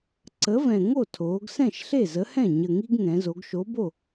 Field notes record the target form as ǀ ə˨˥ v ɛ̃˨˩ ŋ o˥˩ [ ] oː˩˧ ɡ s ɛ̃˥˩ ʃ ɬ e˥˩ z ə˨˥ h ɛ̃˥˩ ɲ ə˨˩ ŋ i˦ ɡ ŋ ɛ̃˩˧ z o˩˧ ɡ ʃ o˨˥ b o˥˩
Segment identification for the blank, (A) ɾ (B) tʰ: B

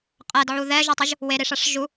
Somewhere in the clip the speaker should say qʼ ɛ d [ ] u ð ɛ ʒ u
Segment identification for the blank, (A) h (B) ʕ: B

